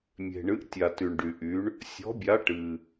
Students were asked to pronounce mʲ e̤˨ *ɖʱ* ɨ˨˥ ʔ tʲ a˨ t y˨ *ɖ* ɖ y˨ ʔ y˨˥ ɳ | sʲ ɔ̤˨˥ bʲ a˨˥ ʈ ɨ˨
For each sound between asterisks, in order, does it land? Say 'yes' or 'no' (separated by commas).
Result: no, no